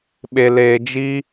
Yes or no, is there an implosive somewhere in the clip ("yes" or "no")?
yes